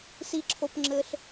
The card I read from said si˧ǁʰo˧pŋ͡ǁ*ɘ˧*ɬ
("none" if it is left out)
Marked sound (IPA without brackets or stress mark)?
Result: ɘ˧